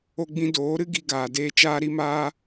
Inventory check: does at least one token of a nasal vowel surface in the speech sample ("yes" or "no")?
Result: yes